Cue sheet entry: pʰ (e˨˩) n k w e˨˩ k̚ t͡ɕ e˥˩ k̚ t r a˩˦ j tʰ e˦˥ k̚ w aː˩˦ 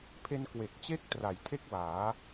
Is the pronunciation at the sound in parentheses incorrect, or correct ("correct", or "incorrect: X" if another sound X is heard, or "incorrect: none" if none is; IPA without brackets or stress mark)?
incorrect: e˧